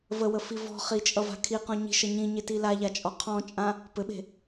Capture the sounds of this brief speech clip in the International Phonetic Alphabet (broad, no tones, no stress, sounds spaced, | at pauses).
v ə w ə f i v ɔ̤ χ i t͡ʃʼ ʌ v a̤ kʰ i q ɔ̃ ɲ i̤ ʃ ʌ ɲ ĩ ɲ e t i l a ʎ a t͡ʃʼ ɔ qʰ ɔ̃ t͡ʃʼ ã | p ɘ ɓ e̤